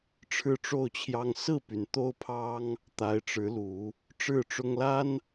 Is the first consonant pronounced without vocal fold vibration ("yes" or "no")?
yes